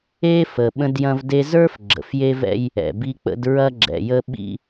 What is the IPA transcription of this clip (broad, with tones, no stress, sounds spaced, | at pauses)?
e˦ f ə˨ ɓ ə̃˦ d j ɐ̃˦ v d e˦ z ə˞˦ f ɡ͡ǁ ə̰˨ f j e˦ v ɛ̰˦ j | ɛ̰˨ b i˦ k͡p ə̰˦ d ɹ ɐ˦ ɡ͡ǁ ɛ̰˨ j ə˦ ɓ ḭ˦